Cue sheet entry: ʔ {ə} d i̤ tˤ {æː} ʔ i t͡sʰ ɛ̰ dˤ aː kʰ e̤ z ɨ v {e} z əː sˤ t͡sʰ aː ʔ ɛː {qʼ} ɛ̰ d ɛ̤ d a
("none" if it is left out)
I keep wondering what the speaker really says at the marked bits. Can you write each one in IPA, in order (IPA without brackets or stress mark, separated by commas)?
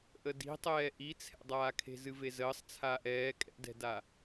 ə, ɛː, e, kʼ